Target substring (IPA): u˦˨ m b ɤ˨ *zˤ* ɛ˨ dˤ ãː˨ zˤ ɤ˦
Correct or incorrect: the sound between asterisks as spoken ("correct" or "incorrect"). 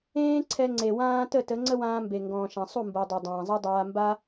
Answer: incorrect